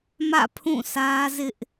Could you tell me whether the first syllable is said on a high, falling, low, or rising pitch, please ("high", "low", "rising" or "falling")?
falling